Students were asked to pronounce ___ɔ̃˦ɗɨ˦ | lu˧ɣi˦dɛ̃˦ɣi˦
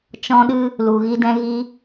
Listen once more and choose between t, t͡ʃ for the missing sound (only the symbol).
t͡ʃ